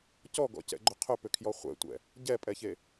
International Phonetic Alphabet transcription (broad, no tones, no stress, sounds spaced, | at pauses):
c ɔ ɡ ɔ̰ c ɛ̰ ɡ͡ǃ ʏ qʰ ʏ p ʏ kʰ j ɔ χʷ ɛ̰ tʷ ɛ̰ | ɟ ɛ pʼ ɛ ç e